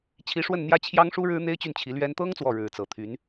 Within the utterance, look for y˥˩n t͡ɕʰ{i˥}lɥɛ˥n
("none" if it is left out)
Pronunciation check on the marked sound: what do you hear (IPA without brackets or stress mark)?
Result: i˧˥